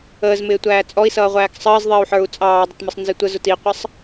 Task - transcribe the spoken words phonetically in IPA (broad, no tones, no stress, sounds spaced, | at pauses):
əː z m ɪː tʷ æː t͡sʼ ɔ i̯ s ʌː ʁʷ æː k sˤ əː z ðˤ ɪː u̯ ħ ə˞ u̯ t͡sʼ ɑː dˤ ə t m ə sˤ n z ɪ tʷ ə z ʊ t i qʷ ʌ sˤ